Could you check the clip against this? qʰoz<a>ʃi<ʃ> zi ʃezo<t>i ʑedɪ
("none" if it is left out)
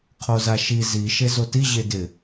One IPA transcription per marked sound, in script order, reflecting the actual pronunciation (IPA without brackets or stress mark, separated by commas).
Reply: a, none, t